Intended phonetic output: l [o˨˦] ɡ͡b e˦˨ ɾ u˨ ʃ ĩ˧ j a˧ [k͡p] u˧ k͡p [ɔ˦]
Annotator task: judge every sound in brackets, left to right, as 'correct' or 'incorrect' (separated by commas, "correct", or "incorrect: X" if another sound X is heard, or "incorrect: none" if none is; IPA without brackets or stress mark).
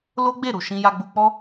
incorrect: o˦, incorrect: ɡ͡b, correct